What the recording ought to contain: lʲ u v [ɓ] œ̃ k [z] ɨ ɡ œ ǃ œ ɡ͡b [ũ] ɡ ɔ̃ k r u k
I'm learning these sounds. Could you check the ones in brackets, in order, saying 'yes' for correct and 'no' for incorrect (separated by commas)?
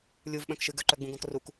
yes, no, yes